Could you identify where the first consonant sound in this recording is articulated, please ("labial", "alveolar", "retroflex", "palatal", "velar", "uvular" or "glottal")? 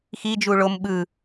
velar